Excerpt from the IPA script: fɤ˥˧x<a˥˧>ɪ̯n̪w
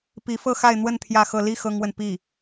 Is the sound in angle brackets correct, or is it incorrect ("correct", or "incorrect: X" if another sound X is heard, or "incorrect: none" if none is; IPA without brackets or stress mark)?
correct